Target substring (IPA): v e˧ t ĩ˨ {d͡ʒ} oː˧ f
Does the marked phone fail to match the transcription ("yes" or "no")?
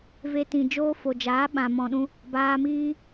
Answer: no